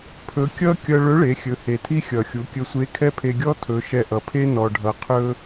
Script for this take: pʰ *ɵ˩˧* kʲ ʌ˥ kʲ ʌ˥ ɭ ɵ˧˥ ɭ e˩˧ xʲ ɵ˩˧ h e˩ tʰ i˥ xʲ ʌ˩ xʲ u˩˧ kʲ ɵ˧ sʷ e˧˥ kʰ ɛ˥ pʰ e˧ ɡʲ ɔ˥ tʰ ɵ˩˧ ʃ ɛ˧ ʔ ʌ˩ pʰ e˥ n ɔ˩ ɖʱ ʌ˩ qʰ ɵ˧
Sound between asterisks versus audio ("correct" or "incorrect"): incorrect